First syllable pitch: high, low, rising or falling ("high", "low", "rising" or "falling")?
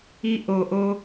high